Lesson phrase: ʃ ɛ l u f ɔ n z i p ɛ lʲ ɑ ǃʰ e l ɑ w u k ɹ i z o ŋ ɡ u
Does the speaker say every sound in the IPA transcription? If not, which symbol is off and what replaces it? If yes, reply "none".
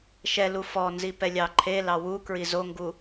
none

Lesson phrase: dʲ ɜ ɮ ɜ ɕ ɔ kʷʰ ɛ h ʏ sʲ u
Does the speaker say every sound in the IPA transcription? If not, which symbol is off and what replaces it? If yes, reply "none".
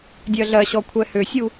none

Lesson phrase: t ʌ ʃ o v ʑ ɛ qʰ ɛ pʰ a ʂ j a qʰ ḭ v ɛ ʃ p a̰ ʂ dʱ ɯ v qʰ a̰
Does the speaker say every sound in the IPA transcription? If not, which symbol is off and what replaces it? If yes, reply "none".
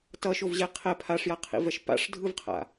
none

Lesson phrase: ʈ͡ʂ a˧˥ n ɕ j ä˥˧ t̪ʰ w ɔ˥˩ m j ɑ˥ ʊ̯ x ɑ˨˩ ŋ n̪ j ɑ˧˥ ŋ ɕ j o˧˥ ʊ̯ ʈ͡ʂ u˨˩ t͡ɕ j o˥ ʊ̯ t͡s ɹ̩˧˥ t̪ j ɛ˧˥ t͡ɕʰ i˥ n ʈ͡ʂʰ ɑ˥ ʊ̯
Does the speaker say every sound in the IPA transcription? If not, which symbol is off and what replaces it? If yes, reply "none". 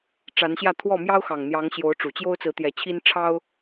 none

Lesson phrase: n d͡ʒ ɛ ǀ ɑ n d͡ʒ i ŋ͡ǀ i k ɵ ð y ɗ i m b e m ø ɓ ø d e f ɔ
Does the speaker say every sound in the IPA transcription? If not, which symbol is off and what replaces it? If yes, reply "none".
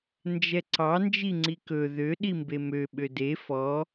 y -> ø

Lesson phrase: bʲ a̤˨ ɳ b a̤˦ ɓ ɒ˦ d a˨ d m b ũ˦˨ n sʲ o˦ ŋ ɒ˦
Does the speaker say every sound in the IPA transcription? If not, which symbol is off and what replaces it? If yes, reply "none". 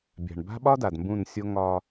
none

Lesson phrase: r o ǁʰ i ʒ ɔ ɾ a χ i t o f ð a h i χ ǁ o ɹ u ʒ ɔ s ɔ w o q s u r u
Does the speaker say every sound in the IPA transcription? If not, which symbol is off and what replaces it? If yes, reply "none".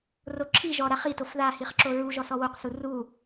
none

